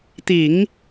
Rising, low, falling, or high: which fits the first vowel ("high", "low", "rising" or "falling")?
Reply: low